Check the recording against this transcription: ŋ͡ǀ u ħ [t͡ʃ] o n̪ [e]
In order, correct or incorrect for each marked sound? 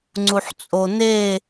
incorrect: t͡sʼ, correct

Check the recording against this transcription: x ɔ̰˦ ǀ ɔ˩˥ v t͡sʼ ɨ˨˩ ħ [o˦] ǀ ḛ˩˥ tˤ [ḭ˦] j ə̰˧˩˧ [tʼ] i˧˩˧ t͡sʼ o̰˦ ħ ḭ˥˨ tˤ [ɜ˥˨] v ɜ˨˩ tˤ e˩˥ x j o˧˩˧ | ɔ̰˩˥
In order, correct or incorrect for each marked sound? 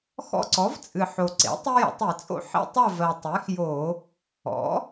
incorrect: o˨˩, incorrect: i˦, incorrect: tˤ, correct

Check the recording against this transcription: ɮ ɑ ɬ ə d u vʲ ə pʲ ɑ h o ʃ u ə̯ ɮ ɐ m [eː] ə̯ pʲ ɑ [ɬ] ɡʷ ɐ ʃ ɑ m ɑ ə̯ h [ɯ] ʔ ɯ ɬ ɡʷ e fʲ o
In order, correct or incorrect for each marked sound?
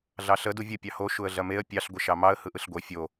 incorrect: e, correct, correct

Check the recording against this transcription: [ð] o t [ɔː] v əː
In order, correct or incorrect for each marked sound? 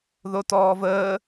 correct, correct

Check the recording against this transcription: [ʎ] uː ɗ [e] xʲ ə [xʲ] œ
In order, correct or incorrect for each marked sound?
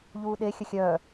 correct, correct, correct

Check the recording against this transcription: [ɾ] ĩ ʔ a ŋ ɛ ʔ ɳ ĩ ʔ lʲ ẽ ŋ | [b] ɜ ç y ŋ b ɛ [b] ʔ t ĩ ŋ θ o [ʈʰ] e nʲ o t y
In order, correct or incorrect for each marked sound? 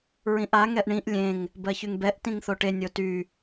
incorrect: ɹ, correct, incorrect: none, incorrect: ʈ

